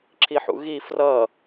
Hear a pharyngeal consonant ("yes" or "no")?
yes